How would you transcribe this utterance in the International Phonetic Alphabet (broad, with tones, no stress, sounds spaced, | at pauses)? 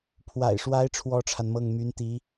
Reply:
pʰ w a̰˨˩ ɪ̯ ʂ w a˧˥ ɪ̯ ʈ͡ʂʰ w ɔ˥ ʈ͡ʂʰ a˨ n m ɤ˥˩ ŋ m y˧˥ n t̪ i˧˥